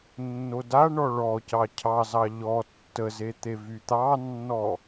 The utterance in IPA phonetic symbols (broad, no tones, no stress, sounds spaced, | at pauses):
nː o d a ɳ ɔ ɭ ɔ c ɑ cʰ ɑ z ɑ ʎ ɔ tː ə z e t̪ e v y t̪ ɑ nː ɔ